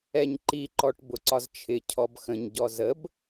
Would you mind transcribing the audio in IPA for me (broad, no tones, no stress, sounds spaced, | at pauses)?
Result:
ɛ ɲ ǃ i ǃ ɔ ʈ b ʊ ǀ ɒ z t͡ʃʰ ɪ cʰ ɔ b x ə̃ ɲ ɟ ɔ z ə b